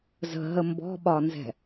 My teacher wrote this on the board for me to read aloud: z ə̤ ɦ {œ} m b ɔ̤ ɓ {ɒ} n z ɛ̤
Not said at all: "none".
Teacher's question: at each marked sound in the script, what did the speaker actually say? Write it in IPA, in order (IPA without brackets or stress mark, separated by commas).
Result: ə, ɒ